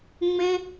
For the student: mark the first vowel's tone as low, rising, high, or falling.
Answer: high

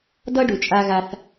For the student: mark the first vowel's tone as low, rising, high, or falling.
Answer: high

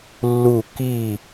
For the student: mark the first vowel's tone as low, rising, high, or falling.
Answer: falling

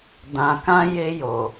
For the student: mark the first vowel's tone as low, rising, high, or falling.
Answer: low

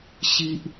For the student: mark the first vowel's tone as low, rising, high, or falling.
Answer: high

